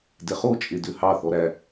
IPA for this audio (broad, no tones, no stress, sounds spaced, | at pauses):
d ɛ χ o t͡ʃʼ e d ø h ɑ θ ɔ ɾ æ